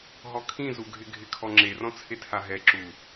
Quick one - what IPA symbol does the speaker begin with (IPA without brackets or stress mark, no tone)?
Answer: ɦ